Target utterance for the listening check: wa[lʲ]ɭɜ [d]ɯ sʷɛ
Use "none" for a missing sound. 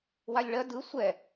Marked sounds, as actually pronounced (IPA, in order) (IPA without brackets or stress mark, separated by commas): lʲ, d